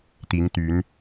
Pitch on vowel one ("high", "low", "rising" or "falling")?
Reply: rising